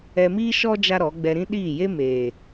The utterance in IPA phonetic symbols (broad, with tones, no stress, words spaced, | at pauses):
ɛ˧miː˦ ʃɔ˦ d͡ʒa˦ɾɔ˨˦ ɡ͡bɛ˧ɾĩ˦ ɗiː˦˨je˦ meː˨